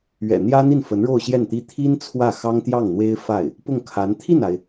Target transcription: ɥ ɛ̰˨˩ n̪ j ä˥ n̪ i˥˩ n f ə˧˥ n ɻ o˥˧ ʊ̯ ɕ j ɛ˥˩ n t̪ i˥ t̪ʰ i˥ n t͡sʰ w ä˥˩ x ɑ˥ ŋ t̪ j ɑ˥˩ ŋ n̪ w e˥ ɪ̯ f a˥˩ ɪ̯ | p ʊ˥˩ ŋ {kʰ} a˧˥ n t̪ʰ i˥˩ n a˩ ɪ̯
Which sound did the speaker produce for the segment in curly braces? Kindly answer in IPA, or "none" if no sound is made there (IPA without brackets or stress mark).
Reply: kʰ